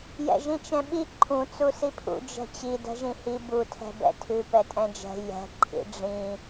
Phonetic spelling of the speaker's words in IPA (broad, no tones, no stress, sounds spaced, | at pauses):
j ɛ̰ ʒ ĩ t͡ʃ ɛ̃ ɓ i ǃʰ ũ t͡s u s i pʰ ṵ d͡ʒ ɛ̤ t͡ɕ i d ɛ̤ ʒ ĩ h i b u tʰ ɛ̤ b ɛ̰ tʰ ʉ p ɛ tʼ ɛ̃ d͡ʒ ɛ̤ j ɛ̤ ǃʰ ḭ ɖ͡ʐ ĩ